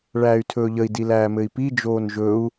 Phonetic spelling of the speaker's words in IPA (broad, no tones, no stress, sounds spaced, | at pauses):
ɭ æː y̯ tʰ ɵː ʎ ə i̯ d i l æː m ɘ i̯ p i d͡ʒ oː n ʒ ɵ u̯